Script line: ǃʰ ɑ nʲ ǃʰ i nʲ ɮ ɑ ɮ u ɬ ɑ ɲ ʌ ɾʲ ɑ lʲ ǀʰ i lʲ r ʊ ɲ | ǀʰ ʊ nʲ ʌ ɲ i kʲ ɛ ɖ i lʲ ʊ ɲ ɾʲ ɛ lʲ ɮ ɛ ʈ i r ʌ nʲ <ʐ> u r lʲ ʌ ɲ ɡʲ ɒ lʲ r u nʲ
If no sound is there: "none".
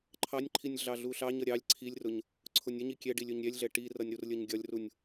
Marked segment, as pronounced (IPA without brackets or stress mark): ɾ